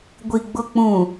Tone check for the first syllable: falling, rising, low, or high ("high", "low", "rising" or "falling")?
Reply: low